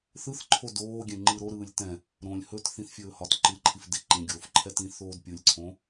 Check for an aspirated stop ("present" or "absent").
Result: present